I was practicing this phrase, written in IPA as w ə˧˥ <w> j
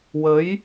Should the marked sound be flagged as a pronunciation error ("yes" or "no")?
yes